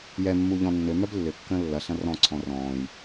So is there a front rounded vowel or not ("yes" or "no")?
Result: yes